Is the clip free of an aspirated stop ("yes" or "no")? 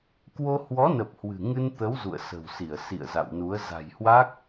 yes